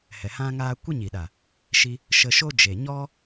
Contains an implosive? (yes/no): yes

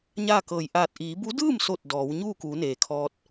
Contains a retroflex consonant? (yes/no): no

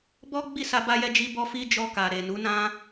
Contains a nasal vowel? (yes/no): yes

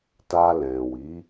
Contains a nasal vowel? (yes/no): yes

